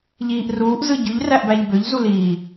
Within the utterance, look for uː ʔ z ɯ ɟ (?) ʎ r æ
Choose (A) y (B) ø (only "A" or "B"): A